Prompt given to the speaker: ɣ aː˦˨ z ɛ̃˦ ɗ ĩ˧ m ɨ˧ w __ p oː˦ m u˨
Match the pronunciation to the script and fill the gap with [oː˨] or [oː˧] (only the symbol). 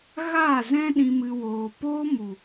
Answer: oː˧